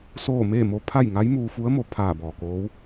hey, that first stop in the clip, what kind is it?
aspirated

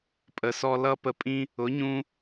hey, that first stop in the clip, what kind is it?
ejective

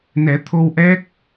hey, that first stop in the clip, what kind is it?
aspirated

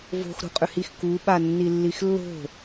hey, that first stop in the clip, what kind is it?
ejective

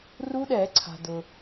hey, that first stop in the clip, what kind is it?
implosive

